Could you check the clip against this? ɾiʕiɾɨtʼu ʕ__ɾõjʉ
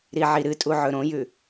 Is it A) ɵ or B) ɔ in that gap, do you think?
A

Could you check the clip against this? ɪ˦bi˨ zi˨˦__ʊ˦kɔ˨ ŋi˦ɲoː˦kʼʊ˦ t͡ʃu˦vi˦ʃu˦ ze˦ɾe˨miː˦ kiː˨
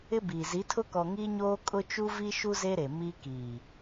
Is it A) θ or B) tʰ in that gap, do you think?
B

